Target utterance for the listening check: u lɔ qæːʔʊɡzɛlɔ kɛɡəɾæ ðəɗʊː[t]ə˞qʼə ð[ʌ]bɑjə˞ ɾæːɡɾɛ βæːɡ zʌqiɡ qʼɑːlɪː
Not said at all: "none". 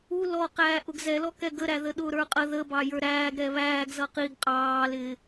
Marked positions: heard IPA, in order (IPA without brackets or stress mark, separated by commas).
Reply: ɾ, ə